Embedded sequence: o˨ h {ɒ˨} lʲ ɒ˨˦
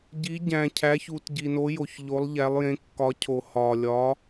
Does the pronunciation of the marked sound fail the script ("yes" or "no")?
no